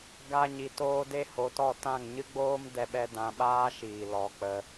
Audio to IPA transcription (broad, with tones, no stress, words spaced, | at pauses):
ɡa˦ ɲi˧toː˦ de˦ho˧tɔ˦˨ tã˦˨ŋ ɲɨ˦ɡ͡boː˦mdɛ˧ɓɛ˧ dã˧ɓaː˦ʃiː˨ lɔ˨˦k͡pə˧